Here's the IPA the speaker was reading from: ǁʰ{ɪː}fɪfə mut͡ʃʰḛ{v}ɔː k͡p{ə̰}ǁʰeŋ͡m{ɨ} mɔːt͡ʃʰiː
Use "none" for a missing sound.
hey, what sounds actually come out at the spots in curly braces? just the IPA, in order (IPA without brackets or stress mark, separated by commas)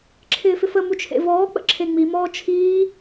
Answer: ɪː, v, ə̰, i